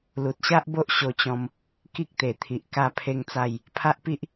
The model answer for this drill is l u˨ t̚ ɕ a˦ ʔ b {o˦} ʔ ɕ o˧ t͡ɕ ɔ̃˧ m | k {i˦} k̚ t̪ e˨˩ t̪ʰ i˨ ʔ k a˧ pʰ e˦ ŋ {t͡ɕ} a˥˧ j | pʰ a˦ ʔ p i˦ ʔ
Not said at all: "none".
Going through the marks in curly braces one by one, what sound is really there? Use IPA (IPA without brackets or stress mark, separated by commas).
o˦, i˦, t͡s